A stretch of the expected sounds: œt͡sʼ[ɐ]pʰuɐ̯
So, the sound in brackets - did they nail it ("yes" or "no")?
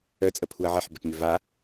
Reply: no